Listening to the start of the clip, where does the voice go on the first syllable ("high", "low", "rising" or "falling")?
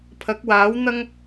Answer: rising